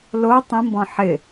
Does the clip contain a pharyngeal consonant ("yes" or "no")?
yes